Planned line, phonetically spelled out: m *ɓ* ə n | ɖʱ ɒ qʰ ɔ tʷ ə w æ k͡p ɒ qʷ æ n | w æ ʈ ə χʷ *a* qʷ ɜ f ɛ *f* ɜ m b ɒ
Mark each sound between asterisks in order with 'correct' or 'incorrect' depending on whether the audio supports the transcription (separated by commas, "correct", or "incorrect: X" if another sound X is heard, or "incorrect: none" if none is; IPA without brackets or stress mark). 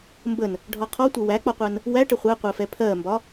incorrect: b, incorrect: æ, incorrect: pʰ